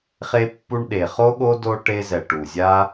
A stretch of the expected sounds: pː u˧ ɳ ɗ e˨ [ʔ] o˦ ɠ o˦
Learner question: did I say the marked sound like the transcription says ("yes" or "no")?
no